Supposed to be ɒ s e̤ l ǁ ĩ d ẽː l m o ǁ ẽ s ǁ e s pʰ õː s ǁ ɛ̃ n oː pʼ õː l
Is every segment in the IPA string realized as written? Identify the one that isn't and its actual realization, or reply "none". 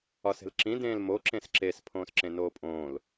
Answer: ɛ̃ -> ẽ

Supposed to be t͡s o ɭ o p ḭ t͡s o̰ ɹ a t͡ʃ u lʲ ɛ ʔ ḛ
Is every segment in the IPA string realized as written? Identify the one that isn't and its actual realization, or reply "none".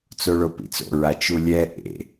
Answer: none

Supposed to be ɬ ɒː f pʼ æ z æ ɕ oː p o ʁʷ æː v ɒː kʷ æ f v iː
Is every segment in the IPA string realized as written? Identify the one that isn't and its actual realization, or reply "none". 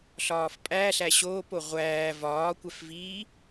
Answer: z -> ɬ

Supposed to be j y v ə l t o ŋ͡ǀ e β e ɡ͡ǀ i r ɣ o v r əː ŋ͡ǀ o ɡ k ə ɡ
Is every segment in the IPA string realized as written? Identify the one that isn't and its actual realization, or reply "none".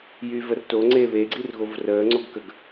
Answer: l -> r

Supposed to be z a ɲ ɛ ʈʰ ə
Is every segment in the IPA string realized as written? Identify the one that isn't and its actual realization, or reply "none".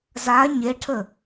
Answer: ɛ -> e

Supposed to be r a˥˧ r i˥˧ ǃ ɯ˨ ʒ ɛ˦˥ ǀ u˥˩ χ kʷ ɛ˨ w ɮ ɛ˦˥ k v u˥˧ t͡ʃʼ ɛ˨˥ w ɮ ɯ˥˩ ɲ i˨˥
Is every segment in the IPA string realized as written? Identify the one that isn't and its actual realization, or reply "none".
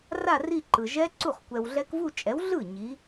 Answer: none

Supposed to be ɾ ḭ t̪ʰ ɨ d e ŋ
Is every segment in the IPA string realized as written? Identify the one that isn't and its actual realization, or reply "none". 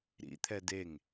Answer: ɨ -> ɛ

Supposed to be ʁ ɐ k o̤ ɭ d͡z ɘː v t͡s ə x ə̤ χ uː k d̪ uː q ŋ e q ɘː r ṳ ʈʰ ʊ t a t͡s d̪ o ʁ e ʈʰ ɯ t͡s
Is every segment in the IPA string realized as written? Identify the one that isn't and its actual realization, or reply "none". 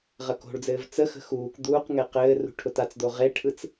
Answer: χ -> x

